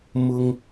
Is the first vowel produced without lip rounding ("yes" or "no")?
no